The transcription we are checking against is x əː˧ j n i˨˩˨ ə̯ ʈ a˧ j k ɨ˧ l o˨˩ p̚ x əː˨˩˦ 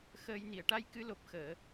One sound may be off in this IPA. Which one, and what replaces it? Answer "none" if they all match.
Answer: none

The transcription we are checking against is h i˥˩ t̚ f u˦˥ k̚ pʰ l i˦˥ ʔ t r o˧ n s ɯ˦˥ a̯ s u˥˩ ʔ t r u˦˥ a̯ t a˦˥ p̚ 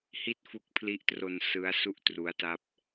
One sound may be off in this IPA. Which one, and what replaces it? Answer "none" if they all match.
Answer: none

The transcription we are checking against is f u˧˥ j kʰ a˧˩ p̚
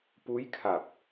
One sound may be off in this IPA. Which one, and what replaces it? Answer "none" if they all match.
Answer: f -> p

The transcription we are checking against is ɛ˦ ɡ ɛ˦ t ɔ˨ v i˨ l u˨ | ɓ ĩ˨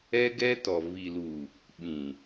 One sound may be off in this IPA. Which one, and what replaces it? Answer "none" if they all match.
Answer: none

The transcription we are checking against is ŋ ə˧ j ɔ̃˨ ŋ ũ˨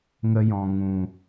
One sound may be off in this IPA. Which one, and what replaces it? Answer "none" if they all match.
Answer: none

